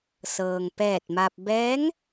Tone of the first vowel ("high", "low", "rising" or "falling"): low